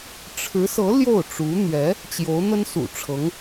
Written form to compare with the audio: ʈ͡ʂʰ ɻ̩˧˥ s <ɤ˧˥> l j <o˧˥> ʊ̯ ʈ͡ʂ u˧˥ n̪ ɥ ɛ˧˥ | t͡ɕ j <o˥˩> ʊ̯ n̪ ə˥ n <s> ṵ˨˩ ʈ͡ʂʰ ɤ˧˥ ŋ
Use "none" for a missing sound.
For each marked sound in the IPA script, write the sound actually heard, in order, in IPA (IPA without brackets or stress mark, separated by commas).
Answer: ɤ˧˥, o˥˩, o˧˥, s